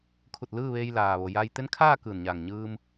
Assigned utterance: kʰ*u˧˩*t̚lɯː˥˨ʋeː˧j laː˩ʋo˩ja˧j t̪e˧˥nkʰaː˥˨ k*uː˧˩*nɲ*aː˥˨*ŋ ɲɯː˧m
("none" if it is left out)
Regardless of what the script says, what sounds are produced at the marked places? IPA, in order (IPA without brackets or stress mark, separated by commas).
u˧˩, ɯː˧˩, aː˧˩